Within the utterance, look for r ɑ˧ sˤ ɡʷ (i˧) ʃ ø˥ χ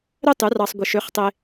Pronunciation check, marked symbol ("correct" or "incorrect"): correct